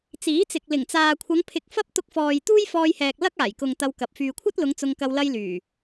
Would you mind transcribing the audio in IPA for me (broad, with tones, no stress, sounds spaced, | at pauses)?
t͡s iː˨˥ t͡s ɪ˨ k̚ l ɪ˨˩ ŋ t͡s aː˨ kʷʰ ɐ˨˧ ŋ pʰ ɪ˧ k̚ f ɐ˥ p̚ t̪ ʊ˧ k̚ f ɔː˨ j t̪ uː˥ j f ɔː˧ j h ɛː˨ k̚ l ɐ˥ k̚ aː˨˩ j k ʊ˨ ŋ t̪ ɐ˧ w k ɐ˨ p̚ f yː˨ kʷʰ ɐ˥ t̚ l ʊ˨˧ ŋ t͡s ʊ˧ ŋ k ɐ˧ w l ɐ˧ j l yː˨˩